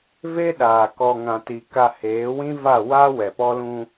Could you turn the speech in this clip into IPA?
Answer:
v e˦ ɗ aː˨ k ɔ˨ ŋ ã˨ t i˨ k a˨ h eː˨˦ w ĩ˦ v a˦˨ w a˦ w ɛ˨ p ɔ˦ l ũ˦

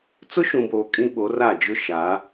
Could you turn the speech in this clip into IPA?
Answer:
t͡s ʊ˦ ʃ ũ˨ b oː˨ kʼ ĩ˦ ɓ o˨˦ r a˦˨ d͡ʒ ʊ˦ ʃ a˨˦

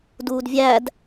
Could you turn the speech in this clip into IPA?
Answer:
d uː d vʲ æ d

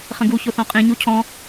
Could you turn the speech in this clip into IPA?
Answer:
χ ə̃ ɡ u ç o θ ɔ̃ qʼ ĩ ɲ u cʰ ɔ̃

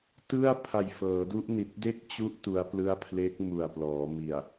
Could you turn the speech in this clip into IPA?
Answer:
t ɯ˥˩ a̯ pʰ a˨˩ j f ɤː˩˦ d u˦˥ ʔ n i˨˩ t̚ d e˥˩ k̚ t͡ɕ u˦˥ ʔ t u˦˥ a̯ p l ɯ˥˩ a̯ pʰ l e˦˥ k̚ m u˨˩ a̯ p l ɔː˩˦ m i˨˩ a̯

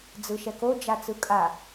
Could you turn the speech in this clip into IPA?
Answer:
d͡z ɯ ʃ ɛ k o d͡ʒ a t͡s ɯ kʼ a

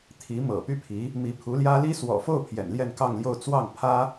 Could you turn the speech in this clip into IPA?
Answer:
t̪ʰ i˧˥ m ɤ̰˨˩ p y˥ pʰ i˧˥ | m i˧˥ pʰ u˧˥ l j ä˥ l i˥ s w ɔ̰˨˩ f o˥˩ ʊ̯ pʰ j ɛ̰˨˩ n l j ɛ˥˧ n k ɑ˥˧ ŋ l j o˥˧ ʊ̯ t͡s w ɑ˥˩ ŋ pʰ ä˥

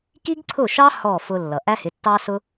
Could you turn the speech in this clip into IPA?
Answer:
k i˥ ɡ ǀʰ ʊ˥˩ ʃ ɑ˥ h ɔ˥˩ f ʊ˧ lː ʌ˩ ʔ æ˥ h ɪ˩˥ tː ɑ˥ s ʊ˥

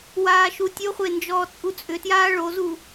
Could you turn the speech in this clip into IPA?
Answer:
w aː ʃ u tʲ o χʷ e n d͡ʒ ɔː t͡sʼ u t͡sʼ ʏ t j aː ɭ o z u

